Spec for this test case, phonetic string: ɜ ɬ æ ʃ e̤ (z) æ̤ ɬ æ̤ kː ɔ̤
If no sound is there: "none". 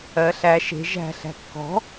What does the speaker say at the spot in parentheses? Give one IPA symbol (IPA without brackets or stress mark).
ʒ